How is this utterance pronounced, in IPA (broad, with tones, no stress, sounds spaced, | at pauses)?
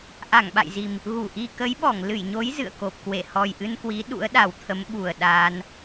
ʔ a˧˩ ŋ ɓ a̰˧˨ j z i˨˩ m | ɣ u˧˩ ʔ i˧ k ə˨˦ j ɓ ɔ˧˩ ŋ l ɨ˧˩ j ɲ o˨˦ j z ɨ̰˧˨ ə̯ k o˨˩ p̚ k w e˧˩ h ɔ˨˩ j ʔ ɨ˧ n k w i˨˦ ɗ ṵ˧˥ ə̯ ɗ a˨˩ w t̪ʰ ə˨˦ m ɓ u˨˩ ə̯ ɗ aː˧ n